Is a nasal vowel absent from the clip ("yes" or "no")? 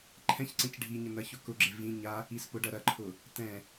no